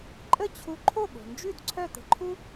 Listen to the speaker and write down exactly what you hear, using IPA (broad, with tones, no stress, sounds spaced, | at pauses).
ǃʼ ə˥˩ t͡ɕʰ u˧ ǃʰ o˥˩ ɠ o̤˩ n d͡ʒ ʉ˥˩ d ǀʰ œ˥˩ t̪ ə̤˧ ǃʰ u˥